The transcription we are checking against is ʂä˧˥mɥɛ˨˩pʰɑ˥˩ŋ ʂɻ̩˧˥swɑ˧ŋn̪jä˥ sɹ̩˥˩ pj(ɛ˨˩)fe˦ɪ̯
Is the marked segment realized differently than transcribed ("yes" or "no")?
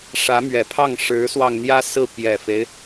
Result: no